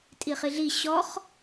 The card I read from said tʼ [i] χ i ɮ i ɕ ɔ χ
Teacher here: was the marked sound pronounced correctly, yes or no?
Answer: yes